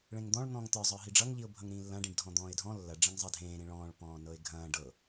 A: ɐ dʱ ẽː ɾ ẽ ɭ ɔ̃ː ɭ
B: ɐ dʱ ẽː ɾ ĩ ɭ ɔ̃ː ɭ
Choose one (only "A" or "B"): B